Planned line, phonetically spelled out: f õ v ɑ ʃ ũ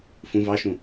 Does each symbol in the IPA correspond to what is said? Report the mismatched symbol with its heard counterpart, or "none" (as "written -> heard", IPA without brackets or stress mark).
õ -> ũ